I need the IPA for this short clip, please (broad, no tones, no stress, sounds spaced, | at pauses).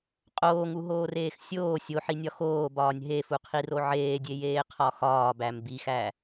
qʼ oː ŋ u ɦ oː r eː x sʲ oː sʲ o ħ i nʲ ɒ x oː b ɒː nʲ ɦ e f u qʰ i r o ʕ eː dʲ e j eː qʰ ɒ x ɒː b æ m b i x æ